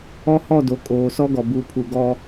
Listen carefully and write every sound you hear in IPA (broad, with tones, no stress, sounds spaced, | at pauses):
ɔ˦ h ɔ˦˨ d o˨ kʼ oː˨ s ɔ˦ ɡ ɔ˨ b u˨ pʰ u˨ ɡ ɔ˦